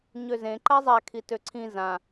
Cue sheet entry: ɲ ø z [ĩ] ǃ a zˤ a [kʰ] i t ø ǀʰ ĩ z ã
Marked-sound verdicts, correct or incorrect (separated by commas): incorrect, correct